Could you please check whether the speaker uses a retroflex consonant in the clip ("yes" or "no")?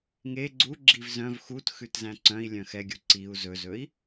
no